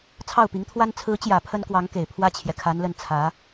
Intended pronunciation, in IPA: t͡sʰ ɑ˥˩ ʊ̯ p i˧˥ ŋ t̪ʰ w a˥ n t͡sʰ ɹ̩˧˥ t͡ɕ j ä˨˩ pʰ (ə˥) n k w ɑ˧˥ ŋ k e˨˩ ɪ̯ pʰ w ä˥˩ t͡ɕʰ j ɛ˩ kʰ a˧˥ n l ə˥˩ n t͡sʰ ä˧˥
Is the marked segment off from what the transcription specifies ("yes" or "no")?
no